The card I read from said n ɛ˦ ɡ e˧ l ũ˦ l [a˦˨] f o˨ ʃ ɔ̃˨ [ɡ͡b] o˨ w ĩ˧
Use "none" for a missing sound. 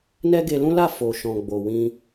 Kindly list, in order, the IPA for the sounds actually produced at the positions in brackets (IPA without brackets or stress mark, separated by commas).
a˦˨, ɡ͡b